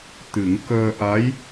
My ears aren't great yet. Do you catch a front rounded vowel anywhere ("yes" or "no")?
no